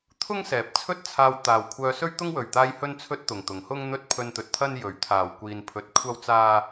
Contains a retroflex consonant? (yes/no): no